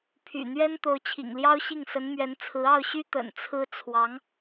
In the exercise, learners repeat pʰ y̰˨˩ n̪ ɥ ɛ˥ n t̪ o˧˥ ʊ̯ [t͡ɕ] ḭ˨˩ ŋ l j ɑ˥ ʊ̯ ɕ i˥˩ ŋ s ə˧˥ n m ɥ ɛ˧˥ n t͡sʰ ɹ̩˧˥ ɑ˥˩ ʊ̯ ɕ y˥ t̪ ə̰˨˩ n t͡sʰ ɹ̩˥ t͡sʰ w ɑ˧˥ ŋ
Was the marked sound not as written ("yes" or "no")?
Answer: yes